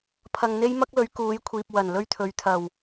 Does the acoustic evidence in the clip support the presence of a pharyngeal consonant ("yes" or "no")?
no